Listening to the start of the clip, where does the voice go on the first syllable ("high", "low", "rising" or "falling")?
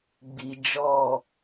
low